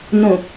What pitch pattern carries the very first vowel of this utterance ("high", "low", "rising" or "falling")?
low